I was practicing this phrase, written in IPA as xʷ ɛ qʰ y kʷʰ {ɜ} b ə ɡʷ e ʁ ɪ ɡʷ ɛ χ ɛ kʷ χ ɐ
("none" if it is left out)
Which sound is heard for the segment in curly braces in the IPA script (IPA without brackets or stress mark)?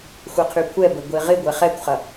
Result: ɛ